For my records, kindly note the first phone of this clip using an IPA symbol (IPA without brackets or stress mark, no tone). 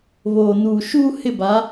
β